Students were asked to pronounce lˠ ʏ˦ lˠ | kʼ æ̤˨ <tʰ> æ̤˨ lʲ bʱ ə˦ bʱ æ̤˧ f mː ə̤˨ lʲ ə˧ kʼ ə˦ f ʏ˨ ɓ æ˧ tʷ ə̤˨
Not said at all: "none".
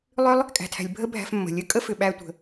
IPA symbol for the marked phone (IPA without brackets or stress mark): tʰ